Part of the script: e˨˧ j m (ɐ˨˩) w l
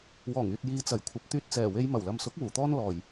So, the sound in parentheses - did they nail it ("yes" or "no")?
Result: yes